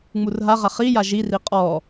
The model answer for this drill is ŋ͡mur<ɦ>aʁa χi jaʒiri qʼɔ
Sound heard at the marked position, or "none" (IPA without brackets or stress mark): ɦ